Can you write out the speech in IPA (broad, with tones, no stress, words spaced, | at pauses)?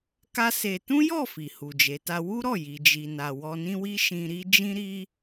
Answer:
ka˦se˧ tũ˦jɔ˦˨ fi˨hu˨d͡ʒe˨˦ta˦ wu˦ɾɔ˦˨ ji˨d͡ʒi˨na˨ wɔ˧nĩ˦wi˦ ʃĩ˧ɾi˦ d͡ʒĩ˦ɾi˦